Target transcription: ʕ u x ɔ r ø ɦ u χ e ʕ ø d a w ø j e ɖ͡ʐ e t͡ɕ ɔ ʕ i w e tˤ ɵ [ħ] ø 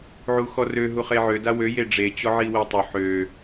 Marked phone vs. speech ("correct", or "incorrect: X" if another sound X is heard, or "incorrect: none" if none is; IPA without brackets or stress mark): correct